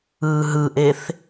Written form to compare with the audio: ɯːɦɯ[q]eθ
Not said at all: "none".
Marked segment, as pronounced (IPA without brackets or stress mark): ʔ